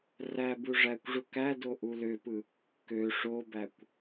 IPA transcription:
r æ b u ʐ æ kʷ ʐ u k æ d o ʔ u l ø p ɯ | k ø ʂ o b æ kʷ

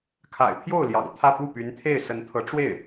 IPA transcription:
kʰ a̰˨˩ ɪ̯ pʰ j o˥˩ ʊ̯ l j ɑ̰˨˩ ŋ t̪ʰ ä˥˧ p u˥˩ p y˧˥ n t̪ʰ e˥˩ ɪ̯ s ə˧˥ n t̪ʰ ɤ˧˥ ʈ͡ʂ w e˥˩ ɪ̯

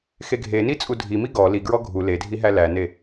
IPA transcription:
x e ɡʱ e n i t͡sʼ u dʱ i m i ɡ ɔ l i ɡ ɹ ɔ ɡʱ u l e dʱ i ɦ æ l æ n e

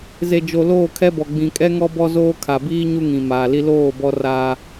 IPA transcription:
z e˨ d͡ʒ o˨ l oː˦˨ kʰ ɛ˦ b ɔ˨ ɡ͡b ĩ˨ kʼ ɛ˦ ŋ ɔ˦ b ɔ˦ z oː˦ kʰ a˨ b iː˦ ɲ u˦ ŋ ĩ˨ m aː˨ l i˦ l oː˦˨ b ɔ˦ r aː˦

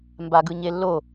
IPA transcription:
m b a ɡ ɯ ɲ e lː o

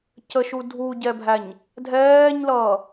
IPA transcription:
c ə ʃ u dʱ u ɟ ɛ bʱ æ ɲ | dʱ ɛː ɲ l ʌː

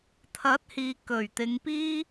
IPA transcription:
t̪ʰ ɐ˨˥ t̚ h iː˨ k ɵ˨˩ ɥ t̪ ɪ˨˧ ŋ p iː˥

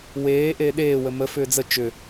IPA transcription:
w eː ʔ eː ɗ eː w ə m ə f ʏː d͡z ə t͡ʃ ʏ

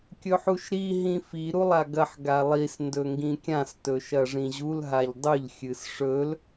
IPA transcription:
kʲ ɵ ħ u ʃ ɾ i ɦ ĩ f i ɾ u lˠ a ɡ ɐ ħ ɡ a lˠ i s n d ɵ ŋ ɡ ĩ kʲ ã s t ɵ ʃ ɐ ʐ ĩ ʑ u l ɦ a ʎ dˤ ɵ ʎ xʲ ɨ s ʂ ɵ l

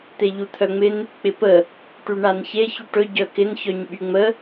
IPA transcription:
t̪ e ʎ u t̪ʰ œ ŋ͡m ɪ n | k͡p ɪ p ə | ʈ y ɳ a n ç e ç y ʈ ɵ ɟ œ k ɪ n ç œ ɲ ɓ y ŋ͡m ə

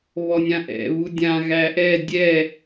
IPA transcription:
β ɔ nʲ ã ʔ ɛ̰ β u dʲ ã ɣ æ ʔ ɛ dʲ ɛ

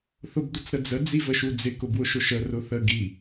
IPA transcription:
θ ʊ b d̪ ʊ t͡s ɾ ə d͡z ə d͡z i v ə ʃ u d͡z ɪ k ʊ b w ʊ ʃ ʊ ʃ ə r ʊ θ ə ɡ i

